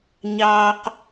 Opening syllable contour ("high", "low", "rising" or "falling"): low